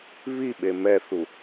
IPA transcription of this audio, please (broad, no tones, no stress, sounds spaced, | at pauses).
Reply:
β i ɓ e m ɛ θ u